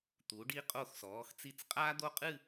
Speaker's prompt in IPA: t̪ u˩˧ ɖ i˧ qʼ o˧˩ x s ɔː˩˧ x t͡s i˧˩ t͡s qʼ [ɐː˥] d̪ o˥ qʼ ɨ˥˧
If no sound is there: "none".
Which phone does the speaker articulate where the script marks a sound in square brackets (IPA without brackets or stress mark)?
aː˥